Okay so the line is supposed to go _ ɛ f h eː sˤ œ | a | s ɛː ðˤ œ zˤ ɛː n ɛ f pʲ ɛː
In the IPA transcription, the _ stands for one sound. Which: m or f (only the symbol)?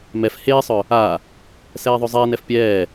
m